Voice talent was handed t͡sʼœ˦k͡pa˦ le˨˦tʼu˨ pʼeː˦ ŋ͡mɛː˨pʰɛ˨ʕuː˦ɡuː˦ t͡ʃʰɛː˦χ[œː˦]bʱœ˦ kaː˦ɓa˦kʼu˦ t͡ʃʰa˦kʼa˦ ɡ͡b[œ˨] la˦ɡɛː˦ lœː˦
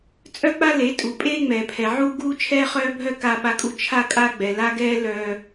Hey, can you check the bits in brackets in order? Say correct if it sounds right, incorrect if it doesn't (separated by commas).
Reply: correct, incorrect